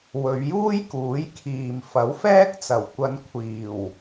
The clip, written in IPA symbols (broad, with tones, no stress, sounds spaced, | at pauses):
w ɵ˨˧ ɥ j uː˥ j k uː˨˥ j kʰ iː˨ m f ɐ˨˥ w f ɛː˥ k̚ t͡s ɐ˨˩ w kʷ ɐ˨˧ n kʷʰ iː˨˩ w